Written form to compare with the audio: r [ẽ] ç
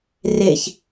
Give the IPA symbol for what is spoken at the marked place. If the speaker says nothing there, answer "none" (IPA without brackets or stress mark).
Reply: e